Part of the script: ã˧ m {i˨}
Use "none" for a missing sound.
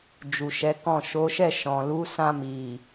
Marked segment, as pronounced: i˨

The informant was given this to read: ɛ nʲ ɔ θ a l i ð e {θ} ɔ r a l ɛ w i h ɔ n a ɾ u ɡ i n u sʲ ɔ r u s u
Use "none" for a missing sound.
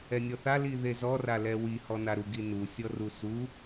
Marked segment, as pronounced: z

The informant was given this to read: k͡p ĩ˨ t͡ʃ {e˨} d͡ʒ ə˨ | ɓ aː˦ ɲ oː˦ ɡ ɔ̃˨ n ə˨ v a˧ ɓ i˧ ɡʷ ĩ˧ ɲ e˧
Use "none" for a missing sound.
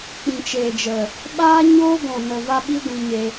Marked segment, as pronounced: e˨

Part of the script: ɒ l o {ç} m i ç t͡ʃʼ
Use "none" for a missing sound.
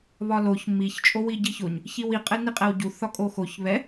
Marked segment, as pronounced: ç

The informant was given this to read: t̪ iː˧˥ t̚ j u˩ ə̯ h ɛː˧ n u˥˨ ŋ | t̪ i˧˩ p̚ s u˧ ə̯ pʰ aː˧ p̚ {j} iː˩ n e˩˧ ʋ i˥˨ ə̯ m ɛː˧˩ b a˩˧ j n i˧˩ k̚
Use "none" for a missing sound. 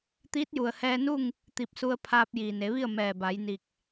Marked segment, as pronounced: j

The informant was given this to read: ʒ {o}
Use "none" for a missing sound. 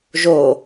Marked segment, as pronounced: o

